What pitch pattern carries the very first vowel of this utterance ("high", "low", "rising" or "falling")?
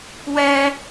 high